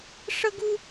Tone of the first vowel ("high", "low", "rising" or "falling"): high